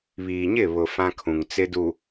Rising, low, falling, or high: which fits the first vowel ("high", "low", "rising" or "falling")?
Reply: low